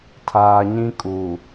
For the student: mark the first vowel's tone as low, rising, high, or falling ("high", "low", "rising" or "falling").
low